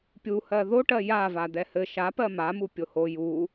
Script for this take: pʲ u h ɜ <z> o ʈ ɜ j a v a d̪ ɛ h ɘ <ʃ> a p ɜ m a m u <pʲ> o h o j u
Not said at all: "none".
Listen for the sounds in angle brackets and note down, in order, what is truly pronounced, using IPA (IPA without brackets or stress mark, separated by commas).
ð, ʃ, pʲ